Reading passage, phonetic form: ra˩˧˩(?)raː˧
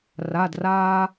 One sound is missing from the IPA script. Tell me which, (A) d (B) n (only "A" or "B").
A